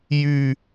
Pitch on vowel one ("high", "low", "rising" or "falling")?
falling